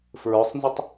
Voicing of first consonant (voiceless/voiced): voiceless